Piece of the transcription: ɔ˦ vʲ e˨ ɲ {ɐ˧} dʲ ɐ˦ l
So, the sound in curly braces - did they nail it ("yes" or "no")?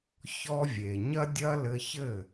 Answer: no